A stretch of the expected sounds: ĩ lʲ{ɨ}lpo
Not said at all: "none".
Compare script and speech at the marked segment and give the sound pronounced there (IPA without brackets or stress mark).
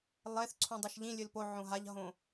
ɨ